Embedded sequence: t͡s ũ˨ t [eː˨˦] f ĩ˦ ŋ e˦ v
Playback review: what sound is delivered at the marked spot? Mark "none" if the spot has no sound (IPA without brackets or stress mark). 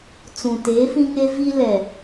eː˨˦